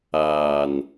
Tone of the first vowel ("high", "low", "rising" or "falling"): low